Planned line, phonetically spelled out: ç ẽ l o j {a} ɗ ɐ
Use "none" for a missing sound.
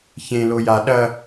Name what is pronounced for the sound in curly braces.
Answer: a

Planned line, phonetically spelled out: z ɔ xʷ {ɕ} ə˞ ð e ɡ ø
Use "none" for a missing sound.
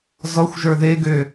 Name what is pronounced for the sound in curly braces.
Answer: ʒ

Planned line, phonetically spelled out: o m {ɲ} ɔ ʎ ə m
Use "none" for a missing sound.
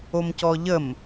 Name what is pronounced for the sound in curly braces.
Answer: c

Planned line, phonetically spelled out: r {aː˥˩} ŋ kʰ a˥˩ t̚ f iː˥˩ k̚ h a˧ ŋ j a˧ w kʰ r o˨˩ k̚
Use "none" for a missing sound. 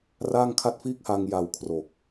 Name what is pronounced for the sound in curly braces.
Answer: aː˥˩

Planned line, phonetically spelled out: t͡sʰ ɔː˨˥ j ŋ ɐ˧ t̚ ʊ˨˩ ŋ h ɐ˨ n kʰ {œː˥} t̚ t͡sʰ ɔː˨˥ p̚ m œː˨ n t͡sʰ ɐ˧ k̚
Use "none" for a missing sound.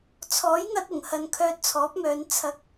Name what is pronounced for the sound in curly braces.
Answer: œː˧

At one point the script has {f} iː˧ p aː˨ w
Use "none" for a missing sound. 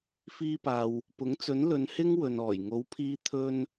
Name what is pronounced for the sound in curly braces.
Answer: f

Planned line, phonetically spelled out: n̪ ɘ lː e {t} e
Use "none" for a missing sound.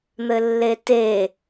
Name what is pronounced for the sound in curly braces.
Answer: t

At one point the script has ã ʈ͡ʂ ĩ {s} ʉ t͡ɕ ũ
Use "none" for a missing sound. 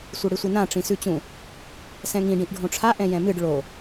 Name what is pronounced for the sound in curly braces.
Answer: s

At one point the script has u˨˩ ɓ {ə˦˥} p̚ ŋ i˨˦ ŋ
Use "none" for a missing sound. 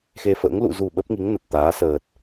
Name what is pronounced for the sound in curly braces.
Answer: ə˦˥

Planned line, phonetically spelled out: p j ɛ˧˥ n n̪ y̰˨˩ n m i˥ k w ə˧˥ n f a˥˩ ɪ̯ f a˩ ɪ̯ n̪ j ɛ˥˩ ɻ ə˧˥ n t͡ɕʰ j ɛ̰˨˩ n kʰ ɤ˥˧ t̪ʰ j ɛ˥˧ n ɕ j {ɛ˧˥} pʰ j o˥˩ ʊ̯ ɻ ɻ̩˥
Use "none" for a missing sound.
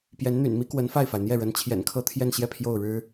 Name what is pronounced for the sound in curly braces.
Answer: ɛ˥˧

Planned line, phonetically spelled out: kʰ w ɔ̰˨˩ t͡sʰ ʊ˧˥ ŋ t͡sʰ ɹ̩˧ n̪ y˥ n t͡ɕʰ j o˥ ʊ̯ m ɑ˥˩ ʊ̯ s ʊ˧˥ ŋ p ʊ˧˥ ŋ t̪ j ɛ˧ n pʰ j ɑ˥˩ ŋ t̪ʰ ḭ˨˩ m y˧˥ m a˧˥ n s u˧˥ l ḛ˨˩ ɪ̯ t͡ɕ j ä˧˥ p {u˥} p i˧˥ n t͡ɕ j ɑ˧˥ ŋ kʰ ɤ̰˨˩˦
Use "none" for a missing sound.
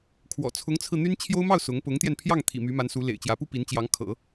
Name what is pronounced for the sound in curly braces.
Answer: u˥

